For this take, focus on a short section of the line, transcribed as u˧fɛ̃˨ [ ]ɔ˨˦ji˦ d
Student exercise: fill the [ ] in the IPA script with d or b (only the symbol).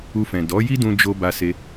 d